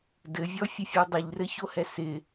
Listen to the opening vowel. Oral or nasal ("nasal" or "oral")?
oral